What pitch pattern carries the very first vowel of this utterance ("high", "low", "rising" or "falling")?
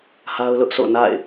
high